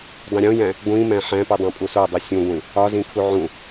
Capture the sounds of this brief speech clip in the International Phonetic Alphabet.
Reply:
dˤ ĩ ɾʲ õ j æ̃ | ɡʷ ĩ m æ̃ ħ æ̃ p i dˤ õ pʼ u s o dˤ i sʲ ũ ɡʷ ĩ | ɒ z ĩ kʰ u ʕ ũ

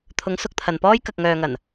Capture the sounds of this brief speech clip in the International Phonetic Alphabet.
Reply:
t̪ʰ ʊ˨˧ ŋ s ʊ˧ k̚ t̪ʰ ɐ˨ n p ɔː˥ j k ɐ˨ k̚ ŋ œː˨ ŋ ɐ˨˩ n

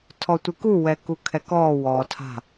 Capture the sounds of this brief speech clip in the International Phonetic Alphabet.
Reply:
tʰ ɔ tʷ i k u w ɛ k u kʰ ɛ k ɔː w ɔ tʰ a̤

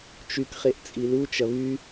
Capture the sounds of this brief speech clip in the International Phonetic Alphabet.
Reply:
t͡ʃ y k χ e ʔ t͡sʼ i l u t͡ʃ ɐ β y

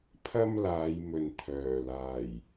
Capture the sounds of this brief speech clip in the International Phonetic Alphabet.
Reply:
pʰ ɐ˥ m l aː˨˧ j m ɵ˨ n t̪ʰ œː˨˩ l aː˨˩ j

